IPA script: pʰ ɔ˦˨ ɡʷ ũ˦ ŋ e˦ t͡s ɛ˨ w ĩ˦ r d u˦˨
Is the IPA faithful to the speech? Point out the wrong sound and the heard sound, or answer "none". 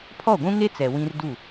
none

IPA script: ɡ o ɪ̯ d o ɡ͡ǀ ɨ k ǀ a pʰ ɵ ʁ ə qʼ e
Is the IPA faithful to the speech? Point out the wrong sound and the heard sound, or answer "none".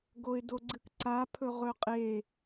ə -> ɵ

